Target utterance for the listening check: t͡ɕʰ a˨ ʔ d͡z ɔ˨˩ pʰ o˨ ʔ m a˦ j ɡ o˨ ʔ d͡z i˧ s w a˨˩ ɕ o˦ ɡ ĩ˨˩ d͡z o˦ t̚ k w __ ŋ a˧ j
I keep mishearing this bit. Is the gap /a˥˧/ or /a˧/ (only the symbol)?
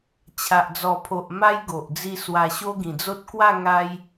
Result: a˥˧